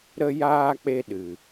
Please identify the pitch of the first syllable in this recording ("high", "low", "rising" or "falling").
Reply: high